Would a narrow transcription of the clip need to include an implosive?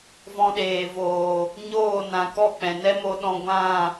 yes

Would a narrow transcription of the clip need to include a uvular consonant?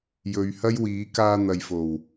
no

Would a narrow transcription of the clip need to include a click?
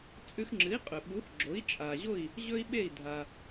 yes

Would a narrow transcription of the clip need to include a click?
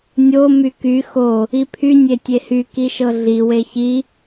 no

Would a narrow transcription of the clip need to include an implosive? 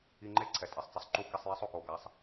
no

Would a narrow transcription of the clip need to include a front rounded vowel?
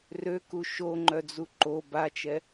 yes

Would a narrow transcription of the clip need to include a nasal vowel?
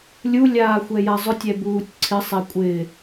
no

